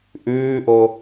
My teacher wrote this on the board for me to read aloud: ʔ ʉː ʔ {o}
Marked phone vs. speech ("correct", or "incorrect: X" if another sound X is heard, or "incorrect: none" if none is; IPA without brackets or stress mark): correct